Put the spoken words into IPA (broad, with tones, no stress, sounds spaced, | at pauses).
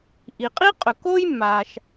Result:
ʔ i˩ qʼ i˥ qʼ ɵ˩ k o˥ j mː a˩ ʃ